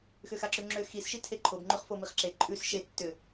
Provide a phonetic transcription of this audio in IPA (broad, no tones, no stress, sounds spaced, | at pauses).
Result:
x ʏ x a ǁ ʉ ŋ͡ǁ ʏ x i s ʃ i tʰ e ǃʰ o b ŋ͡ǃ ʉ χ f o m i χ ǁ e ǃʼ ʉ s ʃ e tː ʏ